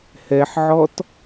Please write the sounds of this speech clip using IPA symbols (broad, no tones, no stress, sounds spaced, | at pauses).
h ɛ ħ ʕ ɔ t